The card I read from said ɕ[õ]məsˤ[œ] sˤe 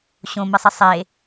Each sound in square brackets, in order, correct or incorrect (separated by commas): correct, incorrect